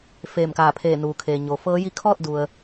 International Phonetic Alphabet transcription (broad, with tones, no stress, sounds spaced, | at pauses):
f eː˧˩ m k aː˧˩ pʰ eː˧˩ n uː˩ kʰ eː˩ ɲ o˩ f ɤː˧˥ j i˧˥ kʰ ɔː˥˨ t̚ d u˩ ə̯